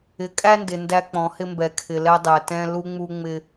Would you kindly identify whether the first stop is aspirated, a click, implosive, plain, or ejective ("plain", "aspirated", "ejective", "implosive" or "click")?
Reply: ejective